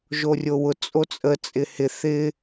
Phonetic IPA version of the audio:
ʒ o rʲ o w ʊ t͡sʼ o t͡sʼ ə t͡sʼ ɪ h ɪ θ ɪ

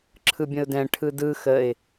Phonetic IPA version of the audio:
ǁʰ ɯ bʲ ə̃ ʊ̯ d ɛ̃ ʈʰ ɯ d ɯ x ə ɪ̯

